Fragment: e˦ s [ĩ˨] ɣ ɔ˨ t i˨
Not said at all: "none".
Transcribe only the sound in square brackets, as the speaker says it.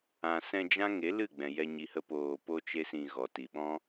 ĩ˧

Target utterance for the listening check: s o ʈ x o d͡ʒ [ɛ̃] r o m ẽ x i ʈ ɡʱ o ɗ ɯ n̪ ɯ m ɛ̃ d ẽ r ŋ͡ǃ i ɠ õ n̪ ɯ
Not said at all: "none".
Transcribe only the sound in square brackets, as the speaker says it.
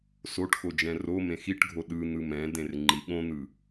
ɛ̃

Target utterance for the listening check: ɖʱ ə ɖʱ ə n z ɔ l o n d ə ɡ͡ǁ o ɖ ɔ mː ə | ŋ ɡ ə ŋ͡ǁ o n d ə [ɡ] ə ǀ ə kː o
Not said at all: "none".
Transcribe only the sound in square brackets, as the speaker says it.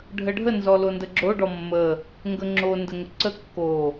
ŋ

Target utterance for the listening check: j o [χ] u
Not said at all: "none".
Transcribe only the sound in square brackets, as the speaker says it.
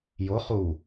χ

